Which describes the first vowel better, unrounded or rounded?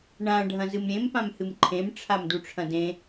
unrounded